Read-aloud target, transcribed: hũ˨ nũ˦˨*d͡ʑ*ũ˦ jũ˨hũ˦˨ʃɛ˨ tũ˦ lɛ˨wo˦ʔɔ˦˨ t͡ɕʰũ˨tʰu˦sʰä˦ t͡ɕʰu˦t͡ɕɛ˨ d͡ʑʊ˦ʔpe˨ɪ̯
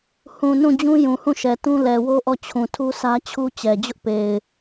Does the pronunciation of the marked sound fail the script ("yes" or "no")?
no